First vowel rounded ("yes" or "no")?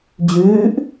yes